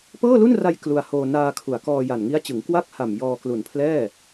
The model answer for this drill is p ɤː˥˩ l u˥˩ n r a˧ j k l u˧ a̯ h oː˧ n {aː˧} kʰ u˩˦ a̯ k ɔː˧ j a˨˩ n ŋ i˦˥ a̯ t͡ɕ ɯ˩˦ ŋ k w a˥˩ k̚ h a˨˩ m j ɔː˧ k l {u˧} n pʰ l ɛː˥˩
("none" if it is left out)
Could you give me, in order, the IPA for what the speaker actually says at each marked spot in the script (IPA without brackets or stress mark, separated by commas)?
aː˧, u˨˩